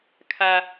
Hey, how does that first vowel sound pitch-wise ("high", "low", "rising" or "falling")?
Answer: high